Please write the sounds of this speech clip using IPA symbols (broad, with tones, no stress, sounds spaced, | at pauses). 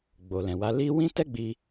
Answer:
ɡ͡b o˨ l ɛ̃˨ w a˧ l i˦ w ĩ˦ t ɛ˦ ɡ͡b i˧